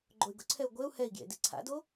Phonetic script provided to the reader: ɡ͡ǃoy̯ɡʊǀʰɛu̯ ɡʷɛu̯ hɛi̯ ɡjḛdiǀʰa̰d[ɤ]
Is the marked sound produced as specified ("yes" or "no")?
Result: no